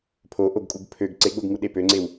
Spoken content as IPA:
pʰ o ʔ o ɡ kʼ u ɡ pʰ ø ɡ ǀ e ɡ͡b o ɡ ŋ u ɗ e p ø ŋ͡ǀ e w

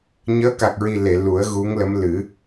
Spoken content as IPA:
ɲ əː˧˥ k a˨˩ k̚ ɹ i˨˩ l e˨˩˨ l u˨˩˦ ə̯ ɣ u˧˥ ŋ l ə˧˥ m l ɨ˨˩˦

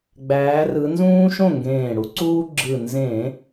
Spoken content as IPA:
ɡ͡b æː˩˧ r ɯ˩˧ n z ũː˦ ʃ õ˥˩ ŋ ɡ ẽː˧˩ ɽ u˦ ǀ uː˦ ɡ͡ǁ ɯ˧˩ n z ẽ˧˩˧

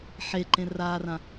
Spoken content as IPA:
ħ e ǃ ẽ r aː r ã

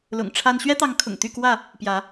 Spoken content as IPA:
l ʊ̰˨˩ ŋ ʈ͡ʂʰ a˦ n ɕ ɥ ɛ˦ t̪ ɑ˨˦ ŋ kʰ ʊ̰˨˩ ŋ t̪ y˥˨ k w ä˥˨ | p j ä˨˦

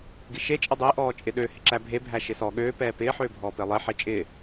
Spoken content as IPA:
ɡ ɪ ʃ e t͡ʃʼ ə dˤ ɪː ʔ ɔː t͡ʃʼ ɪ ɗ ø h ɪ ǁ æ bʱ e bʱ æ ʃ ɪ s ɔ ɠ øː p ɛː p ɪː ħ øː bʱ ɔː p ɪː lˠ ɪː ħ ɪː t͡ʃʼ ɪː

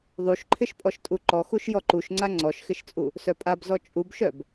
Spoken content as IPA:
ðˤ u ʃ ǃʰ ɪ ʃ pʼ ɔ ʃ tʼ u ǃ ɔ x u ʃ j ɔ ǃ u ʃ ŋ͡ǀ a ŋ͡ǀ ɔ ʃ x ɪ ʃ t͡sʼ u | s œ pʼ a b z ɔ t͡ʃʼ u b ʃ œ b

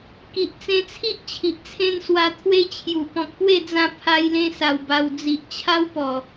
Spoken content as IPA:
k i˨ ʔ t͡s ẽ˧ t͡sʰ i˦ ʔ t͡ɕʰ i˨ ʔ t͡sʰ ẽ˥˧ n s w a˧ t̪ʰ w e˦ t͡ɕʰ j u˨˩ p ɔ̃˨ k̚ p w e˥˧ d͡z ã˧ pʰ a˧ j l ẽ˧ s a˨˩ w b a˨˩ w d͡z i˨ ʔ t͡ɕʰ a˦ w p ɔ˨˩

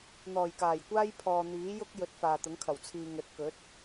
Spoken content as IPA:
n̪ ɔː˨˩ j k aː˨˩ j kʷ aː˥ j pʰ ɔː˨ n̪ iː˨˥ j ʊ˥ k̚ j ɵ˨˥ t̚ f aː˨ t̪ ʊ˨˥ ŋ kʰ ɐ˨˩ w t͡sʰ iː˨ ŋ ɵ˨ t̚ k ɵ˨˥ t̚

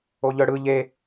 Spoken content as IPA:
o ʎ œ ɽ ɯ ʎ e

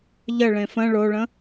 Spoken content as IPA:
ʎ ə ɭ ẽ f ə̃ ɭ o ɭ ə̃

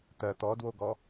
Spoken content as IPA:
t̪ ɜ t̪ ɔ d w o ɡ ɔ

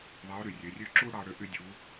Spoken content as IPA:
ðˤ e˧˥ ʊ̯ ɾ y˩ rʲ ø˩˧ rʲ ø˥ ǁ u˥ ɽ ɑ˧ ɽ ø˧ ʔ y˧ dʲ u˩˧

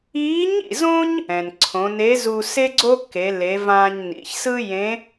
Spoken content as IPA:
iː˧˥ ɲ ḭ˩ z õ˥ ɲ | ɛ̃˩ n ǀʰ õ˩˧ n e˧˥ z u˧ s e˥ ɡ͡ǀ o˥ k e˩˧ l e˩˧ v ãː˧ ɲ n ḭ˩˧ ç s ɯ˥ j ẽ˧˥

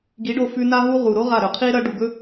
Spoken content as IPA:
ɡ i˨˦ ɖ o˧ f ʉ˧ n aː˦ ɦ u˦ ʁ u˨ ɾ o˦ ʁ a˦˨ ɾ ɵ˨ qʰ iː˦ ɾ ɐ˦ ɖ u˨ ɡ ɵ˦

